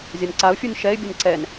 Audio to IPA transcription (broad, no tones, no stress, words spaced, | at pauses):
zʲanǀaʊ̯fʲun ʃɛɪ̯bʲʌn ǀɛn